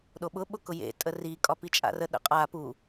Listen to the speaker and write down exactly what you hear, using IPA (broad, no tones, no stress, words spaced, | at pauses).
ɗoɓʊɓʊkʊ jḛ tʼəri kʼɒpit͡ʃʼa̰rə ɗə̰qʼa pu